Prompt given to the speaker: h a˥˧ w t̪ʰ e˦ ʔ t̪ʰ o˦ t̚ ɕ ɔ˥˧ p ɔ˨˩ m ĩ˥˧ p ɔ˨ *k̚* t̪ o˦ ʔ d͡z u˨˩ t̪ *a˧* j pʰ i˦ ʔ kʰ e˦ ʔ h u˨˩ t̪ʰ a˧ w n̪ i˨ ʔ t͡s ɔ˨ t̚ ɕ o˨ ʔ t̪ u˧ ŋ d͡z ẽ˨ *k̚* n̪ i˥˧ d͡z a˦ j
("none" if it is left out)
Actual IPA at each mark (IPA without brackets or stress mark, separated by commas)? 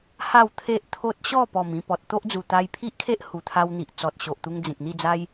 t̚, a˧, k̚